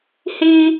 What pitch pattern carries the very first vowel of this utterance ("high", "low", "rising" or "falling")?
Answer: high